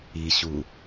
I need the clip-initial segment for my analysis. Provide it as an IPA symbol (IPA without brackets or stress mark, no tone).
i